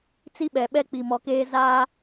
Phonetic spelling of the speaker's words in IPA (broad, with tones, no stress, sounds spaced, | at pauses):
t͡s i˦ ɓ ɛ˨ ɓ ɛ˦ k͡p i˨ m ɔ˨ k eː˦ z aː˦